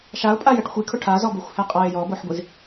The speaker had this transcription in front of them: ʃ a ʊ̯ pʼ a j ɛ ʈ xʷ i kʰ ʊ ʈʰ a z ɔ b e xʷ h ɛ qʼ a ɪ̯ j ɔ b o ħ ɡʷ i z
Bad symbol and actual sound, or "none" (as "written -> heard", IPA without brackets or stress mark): none